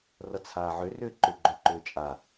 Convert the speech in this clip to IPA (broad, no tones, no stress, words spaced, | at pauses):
rʌt͡sʰaːʕʏrʏː ǃʏɡ͡ǃʏǃʏː t͡ʃʼa